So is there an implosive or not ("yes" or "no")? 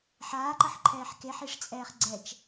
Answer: no